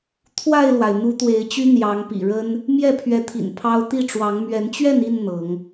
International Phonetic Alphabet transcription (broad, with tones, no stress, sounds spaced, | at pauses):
t̪ʰ w a˥˨ ɪ̯ l w a˩ ɪ̯ n̪ u˨˦ t̪ w e˨˦ ɪ̯ t͡ɕ y˦ n̪ j ɑ˨˦ ŋ p ḭ˨˩ ɻ ə˦ n | m j ɛ˥˨ pʰ ɥ ɛ˨˦ t̪ʰ ḭ˨˩ n pʰ ɑ˦ ʊ̯ t̪ i˥˨ ʈ͡ʂ w ɑ˨˦ ŋ m ɥ ɛ˨˦ n t͡ɕ ɥ ɛ˥˨ n i˥˨ n n̪ ɤ˨˦ ŋ